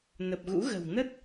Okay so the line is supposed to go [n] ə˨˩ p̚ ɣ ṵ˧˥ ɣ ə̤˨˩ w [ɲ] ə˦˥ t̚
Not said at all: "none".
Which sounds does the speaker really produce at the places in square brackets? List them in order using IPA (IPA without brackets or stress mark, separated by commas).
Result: n, n